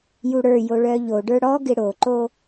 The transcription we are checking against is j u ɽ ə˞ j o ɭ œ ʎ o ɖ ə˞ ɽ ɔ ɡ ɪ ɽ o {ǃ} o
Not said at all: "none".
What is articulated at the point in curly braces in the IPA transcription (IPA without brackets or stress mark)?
ǃ